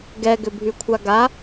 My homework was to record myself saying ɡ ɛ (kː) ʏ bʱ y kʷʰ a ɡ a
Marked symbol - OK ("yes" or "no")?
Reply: no